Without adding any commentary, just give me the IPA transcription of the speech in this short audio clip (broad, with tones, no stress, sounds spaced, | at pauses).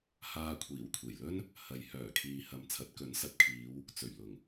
h aː˧ kʷʰ iː˨˩ w kʷʰ e˨˩ j l ɵ˥ n | h ɐ˨ j h œː˨˩ kʰ iː˨ h ɐ˨˧ m t͡sʰ ɐ˨˥ t̚ k ɵ˨˥ n s ɐ˨ p̚ kʰ iː˨˧ w | t͡s ɵ˨˩ ɥ l ʊ˨˩ ŋ